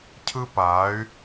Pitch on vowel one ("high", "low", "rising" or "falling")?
high